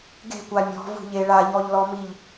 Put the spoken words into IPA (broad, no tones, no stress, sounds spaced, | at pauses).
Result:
ɡ e̤ kʷ a mʲ ɔ̤ v ṳ ʎ e ɭ a ʎ ɔ ʎ l ɔ m i ʎ